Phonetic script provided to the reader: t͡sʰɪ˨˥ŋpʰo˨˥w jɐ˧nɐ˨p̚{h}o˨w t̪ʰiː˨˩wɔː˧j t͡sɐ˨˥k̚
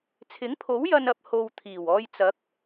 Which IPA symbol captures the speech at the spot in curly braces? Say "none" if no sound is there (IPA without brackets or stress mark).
h